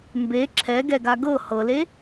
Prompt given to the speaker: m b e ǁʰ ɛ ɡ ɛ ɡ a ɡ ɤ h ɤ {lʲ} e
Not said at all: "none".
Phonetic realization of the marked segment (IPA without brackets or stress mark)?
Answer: l